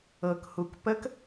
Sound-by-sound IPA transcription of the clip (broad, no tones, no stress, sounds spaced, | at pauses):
ɤ k h u k p ə k